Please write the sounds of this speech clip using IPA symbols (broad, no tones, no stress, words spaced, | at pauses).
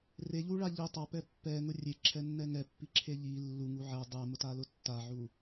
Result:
reʎuɭa ʎi tˤapɛ pːɛŋʊ rʲeǁʰɛnːɛ ŋɛpːiǁʰe ʎi lːuŋu ʕɛ dˤɛmʊtalʊ tːaʕu